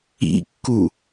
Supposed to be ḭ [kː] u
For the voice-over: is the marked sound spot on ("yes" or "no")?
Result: yes